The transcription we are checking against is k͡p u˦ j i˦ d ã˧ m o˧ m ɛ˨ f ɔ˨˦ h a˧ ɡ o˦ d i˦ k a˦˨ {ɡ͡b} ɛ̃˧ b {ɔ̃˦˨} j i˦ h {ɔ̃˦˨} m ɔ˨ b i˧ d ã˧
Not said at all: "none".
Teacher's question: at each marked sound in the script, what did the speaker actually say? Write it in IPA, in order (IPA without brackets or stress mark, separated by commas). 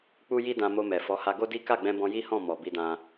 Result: ɡ͡b, ɔ̃˧, ɔ̃˦˨